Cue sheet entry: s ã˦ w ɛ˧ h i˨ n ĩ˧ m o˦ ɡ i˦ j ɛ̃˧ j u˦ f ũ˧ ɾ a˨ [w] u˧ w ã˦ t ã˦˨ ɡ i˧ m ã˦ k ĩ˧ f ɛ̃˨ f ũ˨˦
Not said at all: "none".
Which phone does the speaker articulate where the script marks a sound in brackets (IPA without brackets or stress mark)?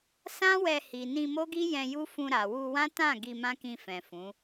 w